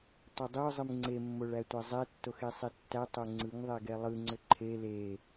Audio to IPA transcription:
tˤ ʏ dˤ ɯ ʊ̯ zˤ ɯ m ŋ͡ǀ e mː o ɭ æ tʷ æ zˤ ɛ tː o x e sˤ e tː æ tˤ o ŋ͡ǀ ɯ ŋ ðˤ ɛ ɡ ɛ lˠ ɯ ŋ͡ǀ ʏ ǃʰ e l e

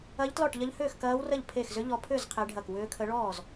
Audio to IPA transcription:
ɐ˦˥ ʎ t l ɔ˥˨ ʈ ʎ ɐ˦˥ ʎ h ʏː˥˨ x k ɐː˦˥ w r ə˥˨ ʎ pʰ e˥˨ x z ʏ˦˥ ʎ ɔ˦˥ pʰ ʏ˥˨ z qʰ e˦˥ ɖʱ ɐ˥˨ k w ʏː˦˥ kʰ ə˦˥ ɭ ɔː˥˨ z

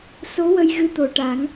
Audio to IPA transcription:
s o˧˥ w ə˧ j ɣ ɨ˧ t̪ o˨˩ ʈ a˨˩˦ ŋ

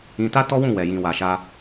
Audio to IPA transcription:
ĩ˧ t a˦ t ɔ˦ w ũ˦˨ w ɛ˨ j ĩ˨ w a˨ ʃ a˧

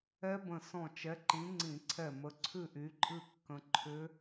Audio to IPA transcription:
ɛ˦˥ b ə̃˧˩ s ɔ̃˧˩ t͡ʃ ɛ˨˥ ǃ ĩ˨˥ ŋ͡ǀ ĩ˧˩˧ ǀʰ ɛ˧˩ m ə˨˥ ǀʰ ʉ˥˧ ʔ y˨˥ ǃʼ ɨ˥˧ kː ə̃˦˥ ǃʰ ʏ˦˥

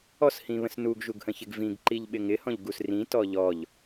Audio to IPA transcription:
ɔ s h ĩ β ə̃ s n u ɡ ʒ u ɡ h ə̃ ç ɪ ɡ v ĩ ɡ ǃ i ʎ ɓ ɪ ŋ ɪ h ɔ̃ ʎ ɡ u s r ĩ t ɔ ʎ ɔ ʎ

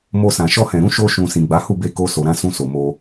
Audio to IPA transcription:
m o˧ s ã˨ ʃ ɔ˧ h ɛ̃˨ ɾ ũ˨˦ ʃ o˦ ʃ ũ˧ s ĩ˨ ɡ͡b a˨˦ h u˦˨ b e˧ k o˦ s o˧ ɾ ã˦ s ũ˧ s o˨ m o˧

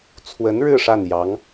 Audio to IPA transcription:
t͡sʰ w ə˧˥ n ɻ ɻ̩˥˧ ʂ a˥˩ n j ɑ˧˥ ŋ

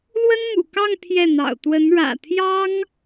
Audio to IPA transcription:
l w ə˥ n m ṵ˨˩ k ɑ˥˧ ŋ pʰ j ɛ˥˩ n̪ ɑ̰˨˩ ʊ̯ t̪ w ə˧˥ n ɻ ä̰˨˩ t̪ʰ j ɑ˥ ŋ

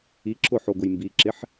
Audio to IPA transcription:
i ǁ ʊ ħ o ɡ ʊ j m b i ǁ ɪ ħ

